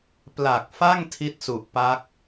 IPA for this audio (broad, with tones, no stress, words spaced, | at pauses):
pla˨˩k̚fa˥˩ŋ tʰi˥˩t̚su˨˩ʔpa˦˥k̚